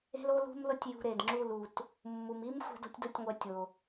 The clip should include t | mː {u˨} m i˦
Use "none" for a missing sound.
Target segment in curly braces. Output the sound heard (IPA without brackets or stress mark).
u˨